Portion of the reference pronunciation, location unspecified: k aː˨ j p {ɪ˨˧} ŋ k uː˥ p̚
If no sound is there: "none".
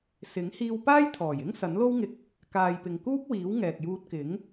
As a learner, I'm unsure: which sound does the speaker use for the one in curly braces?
ɪ˨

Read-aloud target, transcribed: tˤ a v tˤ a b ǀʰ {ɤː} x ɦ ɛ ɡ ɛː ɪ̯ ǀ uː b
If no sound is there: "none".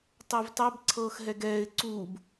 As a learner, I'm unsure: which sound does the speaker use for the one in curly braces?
ɤː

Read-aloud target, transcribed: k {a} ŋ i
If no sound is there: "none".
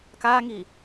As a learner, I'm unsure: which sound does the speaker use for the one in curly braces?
a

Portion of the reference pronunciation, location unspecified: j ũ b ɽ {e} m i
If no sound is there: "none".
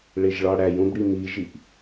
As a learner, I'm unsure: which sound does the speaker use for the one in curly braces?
i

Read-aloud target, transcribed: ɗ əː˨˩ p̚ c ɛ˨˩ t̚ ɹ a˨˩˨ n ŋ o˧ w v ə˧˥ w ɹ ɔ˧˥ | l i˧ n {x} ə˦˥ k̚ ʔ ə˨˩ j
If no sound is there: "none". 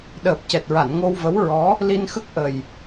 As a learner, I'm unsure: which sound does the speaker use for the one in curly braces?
x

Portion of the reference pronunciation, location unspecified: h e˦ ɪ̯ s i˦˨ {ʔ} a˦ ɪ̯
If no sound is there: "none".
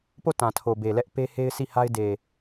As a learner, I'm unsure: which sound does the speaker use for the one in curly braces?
h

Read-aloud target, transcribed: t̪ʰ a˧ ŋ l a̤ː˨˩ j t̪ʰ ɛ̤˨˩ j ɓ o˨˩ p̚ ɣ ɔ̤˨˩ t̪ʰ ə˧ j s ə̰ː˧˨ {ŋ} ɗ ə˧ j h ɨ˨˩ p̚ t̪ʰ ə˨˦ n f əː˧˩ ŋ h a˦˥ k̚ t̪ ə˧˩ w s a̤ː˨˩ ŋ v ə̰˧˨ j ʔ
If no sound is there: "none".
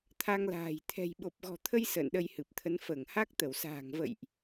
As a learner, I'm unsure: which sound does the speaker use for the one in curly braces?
n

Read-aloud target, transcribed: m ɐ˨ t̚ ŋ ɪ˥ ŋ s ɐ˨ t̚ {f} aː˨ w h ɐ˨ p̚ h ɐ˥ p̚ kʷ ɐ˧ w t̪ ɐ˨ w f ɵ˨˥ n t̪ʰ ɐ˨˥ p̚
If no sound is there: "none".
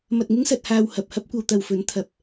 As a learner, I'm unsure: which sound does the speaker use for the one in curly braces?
h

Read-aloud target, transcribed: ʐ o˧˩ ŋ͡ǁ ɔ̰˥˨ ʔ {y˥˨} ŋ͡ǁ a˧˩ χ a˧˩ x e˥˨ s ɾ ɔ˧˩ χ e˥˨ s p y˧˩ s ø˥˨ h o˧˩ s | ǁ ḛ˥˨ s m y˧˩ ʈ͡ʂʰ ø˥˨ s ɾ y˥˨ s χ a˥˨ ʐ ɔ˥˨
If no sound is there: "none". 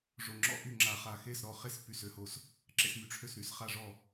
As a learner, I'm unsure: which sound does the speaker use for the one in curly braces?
y˥˨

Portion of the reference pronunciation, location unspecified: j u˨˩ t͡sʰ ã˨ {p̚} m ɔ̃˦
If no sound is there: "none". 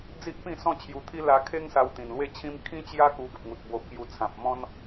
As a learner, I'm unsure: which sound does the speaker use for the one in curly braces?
p̚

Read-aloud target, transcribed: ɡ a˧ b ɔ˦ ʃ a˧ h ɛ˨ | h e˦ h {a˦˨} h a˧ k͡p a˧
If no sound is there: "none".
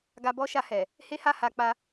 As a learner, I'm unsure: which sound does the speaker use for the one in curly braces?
a˦˨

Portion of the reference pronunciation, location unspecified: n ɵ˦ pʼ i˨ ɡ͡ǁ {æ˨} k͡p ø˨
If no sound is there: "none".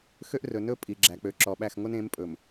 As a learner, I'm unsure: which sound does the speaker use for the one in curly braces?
æ˨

